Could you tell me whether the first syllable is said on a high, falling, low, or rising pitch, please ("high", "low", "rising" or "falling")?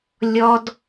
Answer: high